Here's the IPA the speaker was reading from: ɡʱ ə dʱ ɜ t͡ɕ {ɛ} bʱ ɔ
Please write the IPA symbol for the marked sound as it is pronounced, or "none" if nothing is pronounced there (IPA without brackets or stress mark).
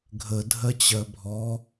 ɜ